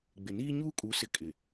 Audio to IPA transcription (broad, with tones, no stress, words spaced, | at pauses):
ɡ͡bɪ˨niː˦ ɲuː˦kʼu˨˦sɪ˨ kʼɪ˨